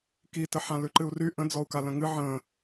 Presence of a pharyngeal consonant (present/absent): present